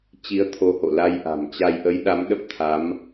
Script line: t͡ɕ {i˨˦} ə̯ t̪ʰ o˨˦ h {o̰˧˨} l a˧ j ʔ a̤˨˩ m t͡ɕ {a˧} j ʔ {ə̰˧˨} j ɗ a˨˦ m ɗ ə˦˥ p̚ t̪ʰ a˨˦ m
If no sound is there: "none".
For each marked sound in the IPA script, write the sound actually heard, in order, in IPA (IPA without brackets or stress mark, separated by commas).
i˨˦, o̰˧˨, a˧, ə˨˦